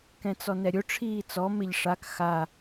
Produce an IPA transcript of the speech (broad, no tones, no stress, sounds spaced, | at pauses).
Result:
k ɛ̃ t͡s ɔ n ɛ ɾʲ ʊ ʈ͡ʂʰ iː t͡s ɔ m ɪ ʎ ʂ a k x a